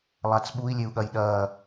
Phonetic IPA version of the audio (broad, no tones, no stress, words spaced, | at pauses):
lˠat͡sɓui̯ lʲeu̯ɠɐjɗɐː